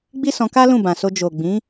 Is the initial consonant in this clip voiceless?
no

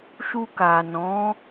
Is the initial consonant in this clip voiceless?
yes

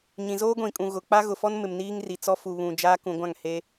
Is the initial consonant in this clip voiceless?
no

